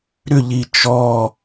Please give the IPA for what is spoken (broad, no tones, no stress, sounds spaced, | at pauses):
ɾ ʏ ʎ i t͡ʃ ɔ